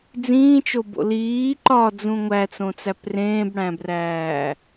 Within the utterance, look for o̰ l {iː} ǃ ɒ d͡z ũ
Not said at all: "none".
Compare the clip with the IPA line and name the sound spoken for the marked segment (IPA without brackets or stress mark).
iː